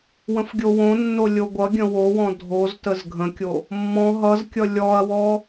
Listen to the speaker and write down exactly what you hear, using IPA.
w ə̃ f ɡʲ o w õ nː o lʲ o ɡʷ ʌ ɡʲ ə̃ w o w ɔ̃ dʱ o z t ə z ɡʱ ə̃ kʲ o | mː ɔ̃ ɦ ʌ z kʲ ʌ lʲ ɔ ɐ̯ w ɔ

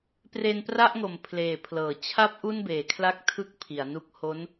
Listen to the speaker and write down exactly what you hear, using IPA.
p r e˧ n p r a˥˩ ʔ ŋ o˨˩ m pʰ l eː˨˩ pʰ l ɤː˩˦ t͡ɕʰ a˦˥ p̚ ʔ u˥˩ n b eː˨˩ kʰ l a˥˩ k̚ tʰ ɯ˥˩ k̚ pʰ i˩˦ a̯ n u˦˥ k̚ h o˦˥ n

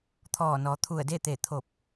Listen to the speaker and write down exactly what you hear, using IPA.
t̪ʰ ɔː˧˩ n ɔː˩˧ t̪ʰ u˧˩ ə̯ d e˥˨ t̪ e˧˩ t̪ʰ o˧˩ p̚

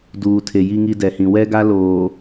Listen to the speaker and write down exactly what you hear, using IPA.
d uː˨ tʰ e˨ j i˦ ŋ i˦ d ɛ˨ h ĩ˨ w ɛ˦ ɡ a˦ l oː˨

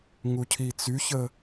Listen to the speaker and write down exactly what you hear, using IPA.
ŋ u cʰ i t͡s y ç ə

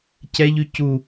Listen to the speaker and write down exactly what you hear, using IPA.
c ɛ ʎ y c u

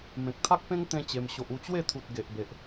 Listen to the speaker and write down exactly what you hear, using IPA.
m ẽ˨ k̚ t̪ʰ a˦ k̚ p ẽ˦ ŋ t̪ ẽ˦ t͡ɕ e˧ m ɕ o˨ ʔ u˧ t͡ɕ w e˥˧ t̪ʰ u˨ t̚ ɡ e˨ ʔ b e˨ ʔ

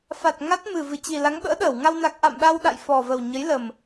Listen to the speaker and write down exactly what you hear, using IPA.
f a˨˩ t̚ ŋ a˦˥ t̚ m ɨ˨˩ v ɨ˧˩ t͡ɕ i˨˩ l a˨˦ ŋ ɓ ə̰ː˧˥ ɗ əː˧˩ w ŋ a˧ w n a˨˩ k̚ ʔ a̰˧˨ m ɗ a˧ w ɗ a̰˧˨ j f ɔ˨˩ v ə˨˩ w ɲ ə˨˦ j l ə˨˩ m

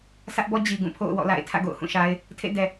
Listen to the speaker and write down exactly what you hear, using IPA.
s ä˦ ʔ b ɔ˦ d͡ʑ i˨ ɡ ũ˦˨ pʰ o̰˦˨ ʊ̯ w ɔ̰˦˨ l a̰˦˨ ɪ̯ tʰ ä̰˦˨ ɡ o̰˦˨ ʊ̯ h ũ˦˨ ʃ a˦ ɪ̯ | tʰ ḛ˦˨ d ɛ˨

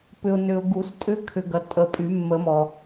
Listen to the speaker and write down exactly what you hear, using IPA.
p ʏ˨ ʊ̯ n ʏ˨ ʊ̯ ɡ u˨˩˦ s tʼ ʏ˧˥ kʰ ʏ˨ ɡ ɐ˨ tʼ ə˨ pʼ y˨˩˦ mː ə˨˩˦ m ɔ˨

